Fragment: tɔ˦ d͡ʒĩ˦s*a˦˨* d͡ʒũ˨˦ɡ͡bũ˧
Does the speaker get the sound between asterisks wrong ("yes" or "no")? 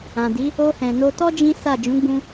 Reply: no